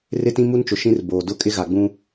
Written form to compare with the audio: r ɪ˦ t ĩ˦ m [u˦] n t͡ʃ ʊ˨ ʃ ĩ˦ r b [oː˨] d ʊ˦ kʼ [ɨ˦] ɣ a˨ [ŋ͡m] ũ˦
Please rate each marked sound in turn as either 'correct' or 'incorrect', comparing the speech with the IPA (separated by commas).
correct, correct, incorrect, incorrect